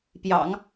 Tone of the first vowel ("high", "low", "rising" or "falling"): low